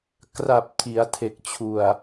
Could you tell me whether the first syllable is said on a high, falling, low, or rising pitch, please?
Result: low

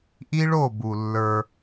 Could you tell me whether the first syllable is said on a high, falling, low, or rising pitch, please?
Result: high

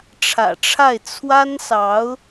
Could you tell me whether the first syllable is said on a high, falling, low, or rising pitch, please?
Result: low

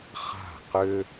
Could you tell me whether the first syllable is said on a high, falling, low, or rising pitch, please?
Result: falling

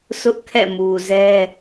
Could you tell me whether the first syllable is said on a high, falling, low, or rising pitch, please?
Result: high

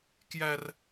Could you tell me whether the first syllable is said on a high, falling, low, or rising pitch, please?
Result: high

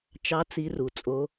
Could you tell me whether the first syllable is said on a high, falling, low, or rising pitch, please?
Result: rising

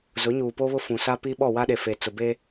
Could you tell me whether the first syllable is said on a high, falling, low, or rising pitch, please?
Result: rising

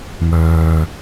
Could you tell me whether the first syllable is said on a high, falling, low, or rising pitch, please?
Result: low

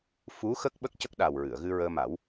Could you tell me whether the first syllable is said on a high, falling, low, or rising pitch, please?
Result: rising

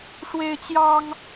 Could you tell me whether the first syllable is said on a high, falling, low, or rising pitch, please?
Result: high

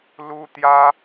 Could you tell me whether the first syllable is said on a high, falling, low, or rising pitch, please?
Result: high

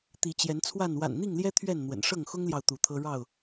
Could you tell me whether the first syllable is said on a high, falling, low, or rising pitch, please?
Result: rising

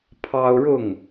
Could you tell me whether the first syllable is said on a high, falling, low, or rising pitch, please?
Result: high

